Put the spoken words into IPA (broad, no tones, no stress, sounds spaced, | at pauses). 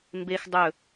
m b e x dˤ ɵ